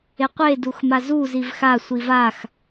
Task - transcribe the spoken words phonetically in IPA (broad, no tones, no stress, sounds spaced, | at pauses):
e qʷ e d u x m a z u z i v x a sʷ i v a x